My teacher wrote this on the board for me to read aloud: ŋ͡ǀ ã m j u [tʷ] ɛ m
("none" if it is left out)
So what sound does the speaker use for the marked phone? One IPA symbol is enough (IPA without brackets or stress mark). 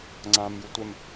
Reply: tʷ